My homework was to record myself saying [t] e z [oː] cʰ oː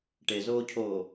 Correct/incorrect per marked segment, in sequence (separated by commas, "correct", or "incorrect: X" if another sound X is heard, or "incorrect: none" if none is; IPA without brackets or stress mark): incorrect: ʈ, correct